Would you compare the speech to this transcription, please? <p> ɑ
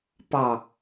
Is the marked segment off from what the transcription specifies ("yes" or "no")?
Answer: no